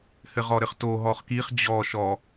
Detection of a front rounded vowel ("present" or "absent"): absent